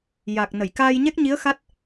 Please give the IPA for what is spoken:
j a˨˩ k̚ n ə˨˩˨ j k aː˧ j ɲ ɛ˦˥ k̚ ɲ i˧˥ ə̯ x a˦˥ t̚

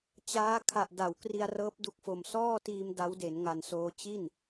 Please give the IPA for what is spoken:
t͡ɕ aː˦˥ kʰ a˨˩ ʔ d a˩˦ w k r i˧ a̯ r ɤː˦˥ p̚ d u˦˥ k̚ f o˨˩ m s ɔː˥˩ t iː˧ m d a˦˥ w d e˩˦ n ŋ a˨˩ n s oː˧ t͡ɕ i˥˩ n

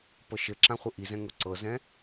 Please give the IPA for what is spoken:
p ɤ ʃ ɘ ǁ ã χʷ ɘ ʔ i z ɛ̃ ŋ ʊ ǀ ɤ z ɛ̃

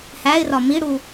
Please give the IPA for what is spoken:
h æ ɪ̯ r ɒ m i ɽ u

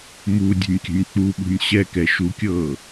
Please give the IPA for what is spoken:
m u dʲ ɛ̤ nʲ kʲ ə̤ nʲ k͡p u ɓ ṳ nʲ ɕ ɛ k ɛ ʃ u kʲ ɤː

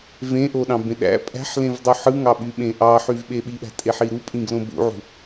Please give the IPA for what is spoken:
v ẽ ʔ o ɗ ɑ̃ b ẽ ɗ æ̰ pʼ æ̤ ħ l ẽ v dˤ u ħ ɯ ŋ ɑ ɓ y ɓ ẽ ʔ ɑ ħ y v ɓ e ɓ i ɓ æ̤ tʼ e ħ i ɾ u pʼ ĩ ɡ l õ b ṵ ʕ ṳ

